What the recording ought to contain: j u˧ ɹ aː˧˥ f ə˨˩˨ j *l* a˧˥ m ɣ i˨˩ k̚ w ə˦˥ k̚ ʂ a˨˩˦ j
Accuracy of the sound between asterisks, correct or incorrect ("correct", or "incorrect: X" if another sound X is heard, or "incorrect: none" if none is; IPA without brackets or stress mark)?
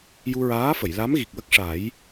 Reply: correct